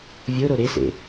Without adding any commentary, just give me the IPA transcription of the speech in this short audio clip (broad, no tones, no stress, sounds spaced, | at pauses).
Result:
vʲ o ɾ o ɾ e s ḛ